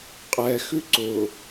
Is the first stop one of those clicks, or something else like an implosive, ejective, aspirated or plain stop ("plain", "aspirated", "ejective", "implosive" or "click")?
ejective